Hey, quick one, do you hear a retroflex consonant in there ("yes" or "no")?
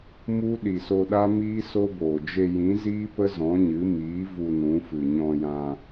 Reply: no